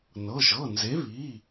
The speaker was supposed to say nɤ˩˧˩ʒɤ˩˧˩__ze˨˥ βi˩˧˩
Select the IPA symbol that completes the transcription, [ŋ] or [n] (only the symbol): n